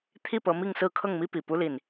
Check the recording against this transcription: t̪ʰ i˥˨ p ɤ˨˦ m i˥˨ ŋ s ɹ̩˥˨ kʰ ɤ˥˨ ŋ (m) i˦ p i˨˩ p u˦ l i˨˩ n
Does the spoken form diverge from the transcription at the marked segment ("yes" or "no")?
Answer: no